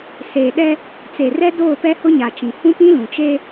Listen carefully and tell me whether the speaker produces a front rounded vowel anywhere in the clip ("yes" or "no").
no